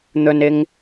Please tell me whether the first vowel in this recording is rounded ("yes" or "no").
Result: yes